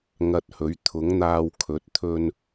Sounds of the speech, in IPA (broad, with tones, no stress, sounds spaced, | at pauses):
ŋ ɐ˧ t̚ h ɵ˨˥ ɥ t̪ʰ ʊ˨˥ ŋ n̪ aː˧ w kʰ ɵ˨˥ t̚ t̪ʰ ɵ˥ n